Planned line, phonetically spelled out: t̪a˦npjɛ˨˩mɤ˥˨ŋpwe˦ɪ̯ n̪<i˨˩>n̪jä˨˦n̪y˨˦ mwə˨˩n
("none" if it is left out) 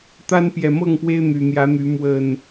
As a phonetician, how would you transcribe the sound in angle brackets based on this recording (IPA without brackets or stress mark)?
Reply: y˨˩